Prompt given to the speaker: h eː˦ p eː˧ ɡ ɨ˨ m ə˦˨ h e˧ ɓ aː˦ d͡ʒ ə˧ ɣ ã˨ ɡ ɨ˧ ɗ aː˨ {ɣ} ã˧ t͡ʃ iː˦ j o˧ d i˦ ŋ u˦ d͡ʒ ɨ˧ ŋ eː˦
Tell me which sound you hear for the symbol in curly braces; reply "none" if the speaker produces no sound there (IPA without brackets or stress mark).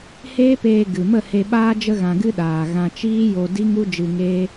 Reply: ɣ